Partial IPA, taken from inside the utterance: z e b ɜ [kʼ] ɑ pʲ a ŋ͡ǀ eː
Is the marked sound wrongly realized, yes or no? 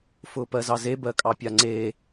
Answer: no